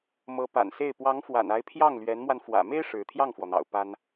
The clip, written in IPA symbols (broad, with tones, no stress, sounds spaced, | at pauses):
m ɤ˧˥ p a̰˨˩ n s e˥˩ ɪ̯ p w ɑ˧˥ ŋ f w a̰˨˩ n a˧˥ ɪ̯ pʰ j ɑ˥˩ ŋ l ɥ ɛ˧˥ n m w a˧ n f w ä̰˨˩ m e˥ ɪ̯ ʂ ɻ̩˧˥ t̪ʰ j ɑ˥˩ ŋ f w ɔ˩ n̪ ɑ̰˨˩ ʊ̯ p a˥ n